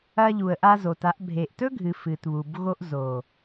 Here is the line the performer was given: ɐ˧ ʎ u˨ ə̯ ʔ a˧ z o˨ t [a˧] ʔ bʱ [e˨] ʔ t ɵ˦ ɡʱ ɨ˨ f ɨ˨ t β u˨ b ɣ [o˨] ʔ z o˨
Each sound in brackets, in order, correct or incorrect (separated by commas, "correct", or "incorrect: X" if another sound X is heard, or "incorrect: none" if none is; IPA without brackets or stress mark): correct, correct, incorrect: o˧